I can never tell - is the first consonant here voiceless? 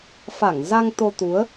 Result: yes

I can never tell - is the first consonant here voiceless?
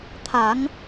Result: yes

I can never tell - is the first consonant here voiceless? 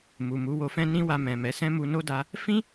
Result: no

